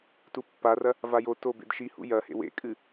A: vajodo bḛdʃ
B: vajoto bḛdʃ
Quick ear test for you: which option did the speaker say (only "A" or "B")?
B